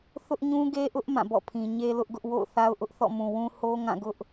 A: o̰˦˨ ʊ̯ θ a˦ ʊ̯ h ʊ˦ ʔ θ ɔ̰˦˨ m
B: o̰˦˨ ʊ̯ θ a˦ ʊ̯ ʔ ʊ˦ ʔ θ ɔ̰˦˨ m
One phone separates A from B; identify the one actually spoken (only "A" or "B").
B